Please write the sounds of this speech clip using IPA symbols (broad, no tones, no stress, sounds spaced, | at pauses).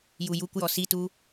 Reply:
j u j u kʷ j ɔ s i t u